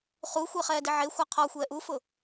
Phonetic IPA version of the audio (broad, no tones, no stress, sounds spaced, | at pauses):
χ u xʷ e χ ɛː d ɪ ʕ e xʷ a qʰ ɔ xʷ ɛː ʔ u f ʊ